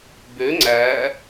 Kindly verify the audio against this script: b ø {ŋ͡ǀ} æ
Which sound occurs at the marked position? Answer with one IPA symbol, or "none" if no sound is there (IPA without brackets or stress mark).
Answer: ŋ͡ǀ